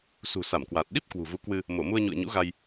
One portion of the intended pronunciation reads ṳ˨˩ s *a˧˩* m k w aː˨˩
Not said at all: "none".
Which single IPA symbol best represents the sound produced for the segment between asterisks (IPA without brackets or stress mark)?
a˧˩